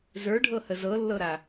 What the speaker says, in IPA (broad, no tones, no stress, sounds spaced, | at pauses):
z ə˞ ɖʱ ɤ h ə z ɤ lː ɤ ɾ a